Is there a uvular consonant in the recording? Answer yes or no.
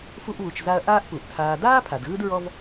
no